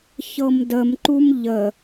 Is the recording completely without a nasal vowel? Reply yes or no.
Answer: yes